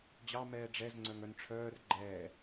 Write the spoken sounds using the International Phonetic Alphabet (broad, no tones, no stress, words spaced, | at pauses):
d͡ʑɑ mɛːɖ͡ʐɛz ŋ͡ǀœŋœnʈ͡ʂʰœːr ɡ͡ǃɛː